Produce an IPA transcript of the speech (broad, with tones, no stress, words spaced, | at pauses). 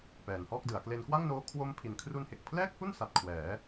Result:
pɛː˩˦nhɔː˥˩k̚dɯ˩˦a̯ kle˧nkwa˥˩ŋnoː˦˥ kʰwo˦˥mpʰi˨˩n kʰru˧nhe˨˩k̚pʰlɛː˥˩k̚hu˥˩n sa˨˩t̚ kʰwɛː˩˦